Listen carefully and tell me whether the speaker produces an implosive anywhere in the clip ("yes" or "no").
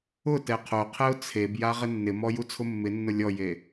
no